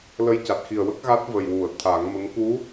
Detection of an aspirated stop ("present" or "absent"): present